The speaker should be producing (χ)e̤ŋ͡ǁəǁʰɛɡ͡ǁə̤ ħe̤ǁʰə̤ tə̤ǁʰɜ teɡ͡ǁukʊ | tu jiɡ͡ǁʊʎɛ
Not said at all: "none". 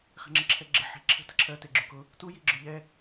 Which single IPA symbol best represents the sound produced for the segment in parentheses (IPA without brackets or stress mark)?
χ